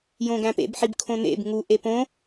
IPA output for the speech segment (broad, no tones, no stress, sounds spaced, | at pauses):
j õ ɡ æ̃ p ḛ b ħ i b kʰ õ n ḛ b ŋ u ʔ e p õ